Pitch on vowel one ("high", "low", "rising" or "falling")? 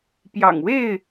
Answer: low